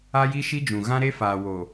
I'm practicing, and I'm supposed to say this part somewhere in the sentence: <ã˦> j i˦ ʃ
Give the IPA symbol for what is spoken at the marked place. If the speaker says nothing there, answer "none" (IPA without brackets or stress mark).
a˦